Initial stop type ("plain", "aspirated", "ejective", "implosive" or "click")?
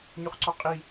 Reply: click